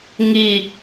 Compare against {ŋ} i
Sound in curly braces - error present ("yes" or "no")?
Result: no